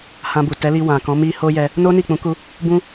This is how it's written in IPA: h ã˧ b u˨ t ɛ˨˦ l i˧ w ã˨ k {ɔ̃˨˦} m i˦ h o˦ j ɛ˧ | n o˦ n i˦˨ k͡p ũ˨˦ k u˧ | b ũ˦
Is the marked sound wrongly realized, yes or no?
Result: no